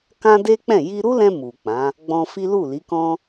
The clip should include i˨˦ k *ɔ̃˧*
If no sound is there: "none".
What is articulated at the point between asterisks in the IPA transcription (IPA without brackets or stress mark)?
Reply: ɔ̃˦